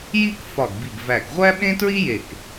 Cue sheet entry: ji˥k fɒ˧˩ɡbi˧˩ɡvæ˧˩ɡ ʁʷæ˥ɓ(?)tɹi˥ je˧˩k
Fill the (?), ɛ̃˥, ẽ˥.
ẽ˥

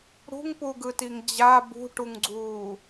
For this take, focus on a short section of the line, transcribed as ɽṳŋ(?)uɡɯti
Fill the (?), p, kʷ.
p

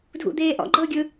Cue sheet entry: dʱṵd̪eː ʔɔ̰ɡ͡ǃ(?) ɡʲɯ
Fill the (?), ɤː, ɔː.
ɤː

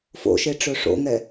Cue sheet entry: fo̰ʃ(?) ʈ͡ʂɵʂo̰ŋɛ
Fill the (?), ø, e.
e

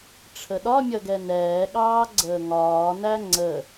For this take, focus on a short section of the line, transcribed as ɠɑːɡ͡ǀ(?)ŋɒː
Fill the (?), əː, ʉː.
əː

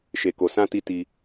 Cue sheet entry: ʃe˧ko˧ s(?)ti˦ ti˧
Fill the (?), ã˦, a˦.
ã˦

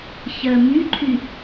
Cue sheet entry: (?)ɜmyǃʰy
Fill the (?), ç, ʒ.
ç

